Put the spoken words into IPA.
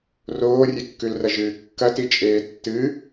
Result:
r oː rʲ e kː ʉ l r ɐ ʒ ɨː kː ɐ t i t͡ʃʼ eː tː ɨ

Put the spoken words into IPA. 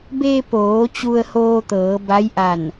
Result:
b e˧ p oː˩˧ t͡ɕ u˧ ə̯ h oː˧ t̪ ɤː˩˧ b a˧˥ j ʔ a˧˩ n

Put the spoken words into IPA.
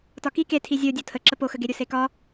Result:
t ɒ k i k e tʰ i zʲ o dʲ o tʰ ə ǁ ə p o x ə ɡ e ɾʲ u s e k ɒ

